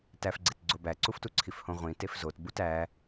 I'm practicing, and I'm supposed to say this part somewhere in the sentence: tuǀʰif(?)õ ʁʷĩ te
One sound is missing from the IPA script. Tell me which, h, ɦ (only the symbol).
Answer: h